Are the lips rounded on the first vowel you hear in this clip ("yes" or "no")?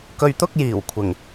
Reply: yes